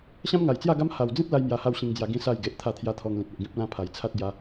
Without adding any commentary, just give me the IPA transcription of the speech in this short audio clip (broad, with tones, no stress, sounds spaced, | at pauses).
ɕ ã˦ m ŋ a˨˩ j t͡s j a˥˧ ɡ a˦ m h a˨˩ w d͡z ĩ˦ t̚ l a˦ j m j a˧ h a˥˧ w ɕ ĩ˧ ŋ d͡z j a˧ ɡ ĩ˦ s a˥˧ j ɡ e˨ ʔ t̪ʰ a˥˧ t̪ʰ j a˦ t̪ʰ ɔ˧ ŋ l ĩ˨ t̚ e˨ ʔ ɡ ĩ˦ p̚ l ã˦ pʰ a˨˩ j t͡sʰ a˦ t̚ ɡ j a˧